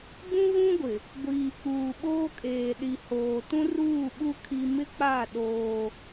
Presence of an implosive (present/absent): present